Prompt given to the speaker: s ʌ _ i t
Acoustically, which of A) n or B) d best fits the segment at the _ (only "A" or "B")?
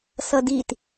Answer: B